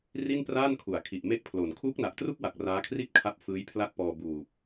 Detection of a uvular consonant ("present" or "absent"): absent